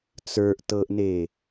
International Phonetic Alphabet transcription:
t͡s ə˞ ʔ t ɤ ʔ n e

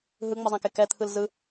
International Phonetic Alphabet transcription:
ɦ ɯ ŋ͡m ʌ zˤ ã k e k ɛ t̪ʰ ɯ l z ɯ

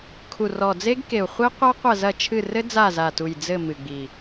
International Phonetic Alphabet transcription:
kʰ u˨˩ r ɔ˨˩ d͡z e˦˥ ɡ k e˨˩ u̯ χʷ i˦˥ qʷ a˦˥ qʷ ɐ˦˨ z ɐ˦˨ t͡ʃʰ ɨ˦˨ r ɘ˦˥ d͡z a˦˨ z a˨˩ t u˨˩ j d͡z ɘ˦˨ m ɨ˨˩ ɡ͡b i˨˩

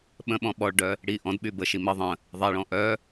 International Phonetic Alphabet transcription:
ɓ ə̃ ɓ ɔ̃ ɓ ɔ ɭ ɖ œ | ɽ i ʔ ɔ̃ d ɓ y b ə ʃ i m ə ðˤ ə̃ | ðˤ ɛ ɭ ɔ̃ ʔ œ

